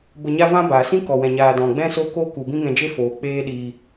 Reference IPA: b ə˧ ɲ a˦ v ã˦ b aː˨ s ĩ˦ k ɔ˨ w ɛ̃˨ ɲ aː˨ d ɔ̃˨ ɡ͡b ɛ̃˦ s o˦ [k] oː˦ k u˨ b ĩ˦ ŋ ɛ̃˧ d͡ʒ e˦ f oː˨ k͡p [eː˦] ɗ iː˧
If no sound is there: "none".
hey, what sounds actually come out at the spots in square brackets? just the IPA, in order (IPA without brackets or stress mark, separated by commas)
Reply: k, eː˦